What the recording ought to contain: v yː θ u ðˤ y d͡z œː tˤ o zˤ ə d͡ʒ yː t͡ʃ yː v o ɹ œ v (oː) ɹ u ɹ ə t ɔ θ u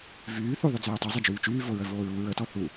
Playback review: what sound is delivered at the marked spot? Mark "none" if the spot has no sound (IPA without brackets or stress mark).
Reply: oː